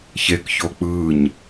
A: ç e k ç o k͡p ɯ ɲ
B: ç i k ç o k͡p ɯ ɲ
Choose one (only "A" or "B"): A